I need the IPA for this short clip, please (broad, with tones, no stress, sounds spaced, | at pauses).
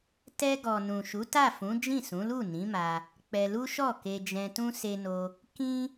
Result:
t ɛ˧ ɡ ɔ˨ n ũ˨ ʃ u˨˦ t a˦˨ f ũ˨˦ d͡ʒ ĩ˦˨ s ũ˨˦ l u˦˨ n ĩ˨˦ m a˧ | k͡p ɛ˧ l u˦ ʃ ɔ˦˨ k e˧ d͡ʒ ɛ̃˧ t ũ˦ s e˧ n o˧ | k ĩ˦